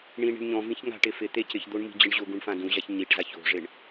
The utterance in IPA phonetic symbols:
ɳ ĩ ɳ i̤ ɳ ɲ ɔ̃ v ĩ ç ŋ a̤ ʈ ɪ f ɪ t̪ e c ɪ ç d̪ o ɳ m i̤ d͡ʑ ɪ ɳ ʑ ʊ ɡ ũ ɳ f ã d ũ ʑ a ç ɲ i ʈ z a ç o̤ ʐ ɪ ɳ

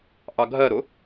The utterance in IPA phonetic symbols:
ʔ ɑ ɡʱ ɜ ɾ ʊ

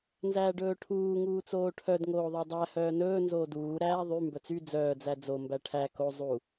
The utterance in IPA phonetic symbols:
n z æː ɖ ɵː ʈʰ uː ŋ uː t͡s oː ʈʰ œ d ŋ oː ðˤ æ dˤ æ h œː n ɵː n z oː d uː ɾ æː ðˤ y m b œ t͡s y d͡z œː d͡z æ d͡z o m b æ ʈʰ æ k o zˤ u

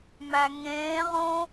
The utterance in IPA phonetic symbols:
m æ ŋ ẽː ʁ õ

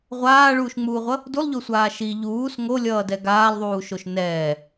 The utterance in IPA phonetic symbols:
ʁʷ aː ɭ uː ʃ ŋ͡m uː ʁʷ ʌ | d u lˠ ʎ o sʷ aː ʃ i ʎ uː s ŋ o lʲ ʌː d ɛ ɡ aː lˠ ðˤ uː ʃ o ʃ n ɛː

